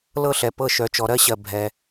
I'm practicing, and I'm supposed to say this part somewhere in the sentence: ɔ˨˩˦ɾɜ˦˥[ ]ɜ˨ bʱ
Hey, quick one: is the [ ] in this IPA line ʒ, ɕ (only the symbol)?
ɕ